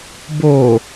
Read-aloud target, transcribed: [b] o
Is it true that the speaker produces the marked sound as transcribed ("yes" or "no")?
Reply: yes